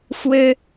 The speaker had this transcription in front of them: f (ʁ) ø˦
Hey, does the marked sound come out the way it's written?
no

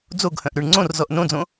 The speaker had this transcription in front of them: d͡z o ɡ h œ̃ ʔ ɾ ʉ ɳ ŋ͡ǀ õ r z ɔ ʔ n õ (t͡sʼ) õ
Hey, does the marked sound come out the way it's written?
no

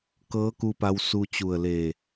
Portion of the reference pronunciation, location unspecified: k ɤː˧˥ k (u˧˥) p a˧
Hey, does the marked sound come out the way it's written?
no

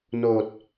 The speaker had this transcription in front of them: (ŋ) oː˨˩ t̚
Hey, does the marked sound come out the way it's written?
no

